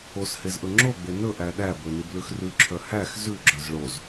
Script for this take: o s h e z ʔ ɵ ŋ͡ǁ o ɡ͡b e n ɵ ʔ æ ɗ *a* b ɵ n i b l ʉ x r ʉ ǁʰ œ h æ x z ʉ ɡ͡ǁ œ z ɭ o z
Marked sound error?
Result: yes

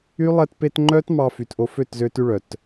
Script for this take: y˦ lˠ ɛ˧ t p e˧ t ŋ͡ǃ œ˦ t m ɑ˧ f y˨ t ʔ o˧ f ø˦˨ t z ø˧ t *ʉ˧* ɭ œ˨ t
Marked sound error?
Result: no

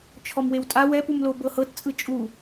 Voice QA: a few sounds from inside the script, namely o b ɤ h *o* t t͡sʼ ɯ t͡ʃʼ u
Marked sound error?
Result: yes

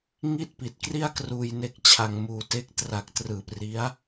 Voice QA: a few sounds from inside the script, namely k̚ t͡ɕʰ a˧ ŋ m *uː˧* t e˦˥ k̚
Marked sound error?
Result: no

